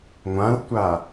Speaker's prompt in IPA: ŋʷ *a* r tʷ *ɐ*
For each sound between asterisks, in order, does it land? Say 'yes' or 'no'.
no, no

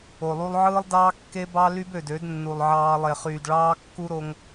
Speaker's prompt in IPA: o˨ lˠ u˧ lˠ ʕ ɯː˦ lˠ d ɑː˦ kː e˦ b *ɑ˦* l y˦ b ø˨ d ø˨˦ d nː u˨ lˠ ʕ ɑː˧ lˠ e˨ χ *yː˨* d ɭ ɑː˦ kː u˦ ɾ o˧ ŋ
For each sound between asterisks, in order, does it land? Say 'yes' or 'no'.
yes, yes

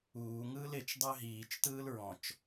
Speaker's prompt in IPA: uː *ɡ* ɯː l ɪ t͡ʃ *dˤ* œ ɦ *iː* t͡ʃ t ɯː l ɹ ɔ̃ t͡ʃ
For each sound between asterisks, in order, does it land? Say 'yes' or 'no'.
no, yes, yes

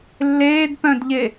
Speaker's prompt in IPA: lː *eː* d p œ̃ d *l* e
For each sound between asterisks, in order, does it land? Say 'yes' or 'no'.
yes, no

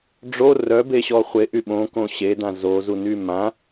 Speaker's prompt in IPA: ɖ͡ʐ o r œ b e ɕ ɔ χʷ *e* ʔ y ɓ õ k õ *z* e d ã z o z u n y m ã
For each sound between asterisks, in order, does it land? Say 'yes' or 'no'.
yes, no

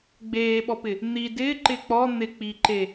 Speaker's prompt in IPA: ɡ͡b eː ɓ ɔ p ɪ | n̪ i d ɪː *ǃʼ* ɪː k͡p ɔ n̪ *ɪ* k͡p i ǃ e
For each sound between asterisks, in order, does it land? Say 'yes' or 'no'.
no, yes

